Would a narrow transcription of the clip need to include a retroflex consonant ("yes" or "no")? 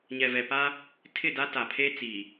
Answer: no